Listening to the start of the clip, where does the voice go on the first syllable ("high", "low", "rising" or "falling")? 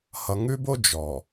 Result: low